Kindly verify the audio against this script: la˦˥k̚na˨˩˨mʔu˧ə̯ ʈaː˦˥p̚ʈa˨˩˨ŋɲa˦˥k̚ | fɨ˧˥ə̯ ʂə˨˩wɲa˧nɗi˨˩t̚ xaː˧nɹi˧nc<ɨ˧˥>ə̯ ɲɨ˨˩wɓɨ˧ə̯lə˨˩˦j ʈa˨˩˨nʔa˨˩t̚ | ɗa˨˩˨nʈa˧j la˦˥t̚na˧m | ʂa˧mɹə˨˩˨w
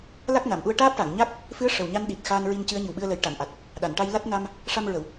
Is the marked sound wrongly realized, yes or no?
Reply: no